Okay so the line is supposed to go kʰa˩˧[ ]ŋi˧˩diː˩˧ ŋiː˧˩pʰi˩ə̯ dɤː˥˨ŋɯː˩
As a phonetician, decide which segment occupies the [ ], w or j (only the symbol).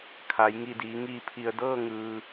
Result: j